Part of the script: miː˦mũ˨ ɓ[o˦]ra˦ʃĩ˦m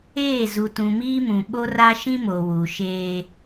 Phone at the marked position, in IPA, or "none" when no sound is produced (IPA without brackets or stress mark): o˦